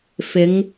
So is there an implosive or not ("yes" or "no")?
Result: no